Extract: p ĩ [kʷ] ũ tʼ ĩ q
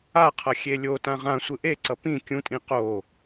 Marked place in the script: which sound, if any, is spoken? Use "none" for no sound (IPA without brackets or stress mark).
kʲ